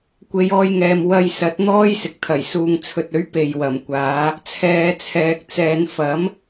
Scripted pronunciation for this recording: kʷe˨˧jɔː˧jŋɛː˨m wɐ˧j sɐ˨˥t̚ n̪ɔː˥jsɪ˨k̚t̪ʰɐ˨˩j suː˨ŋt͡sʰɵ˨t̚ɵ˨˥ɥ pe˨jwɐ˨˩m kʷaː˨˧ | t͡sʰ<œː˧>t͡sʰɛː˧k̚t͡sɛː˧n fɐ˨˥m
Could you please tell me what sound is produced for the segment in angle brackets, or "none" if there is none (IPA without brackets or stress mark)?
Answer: ɛː˧